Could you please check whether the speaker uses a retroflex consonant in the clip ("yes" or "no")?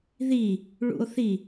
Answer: yes